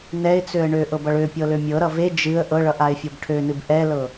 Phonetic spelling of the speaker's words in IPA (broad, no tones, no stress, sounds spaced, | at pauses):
n ɛ ɪ̯ t͡s ø ə̯ ɳ ø ʔ ɤ b ʌ ɭ ø pʲ ɤ l ø mʲ ɤ ɾ ʌ v e d͡ʒ ɨ ə̯ ʔ ɤ ɭ ʌ ʔ a ɪ̯ fʲ ɤ b ʈʰ ø n ɨ b ʔ ɛ l ɤ